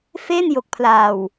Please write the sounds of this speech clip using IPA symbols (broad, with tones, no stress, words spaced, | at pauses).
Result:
fe˥˩njo˨˩k̚pʰlaː˨˩w